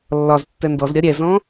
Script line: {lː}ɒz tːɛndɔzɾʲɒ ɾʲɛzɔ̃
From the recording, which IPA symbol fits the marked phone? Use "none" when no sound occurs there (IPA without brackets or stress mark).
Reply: lː